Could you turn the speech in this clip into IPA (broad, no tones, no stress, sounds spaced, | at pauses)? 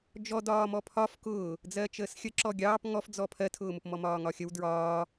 d͡ʒ ɔ d ɒː m ɔ pʰ ɒ f k ʊː | d͡z ɜ t͡ʃ əː s xʲ ə ǁ ɔ ɡʲ ɑː p ŋ ɔ f d͡z ɔ pʰ ɜ tʰ ʊː m ʊ p m ɔ m ɒː ŋ ɒ xʲ ə w d ɹ ɒː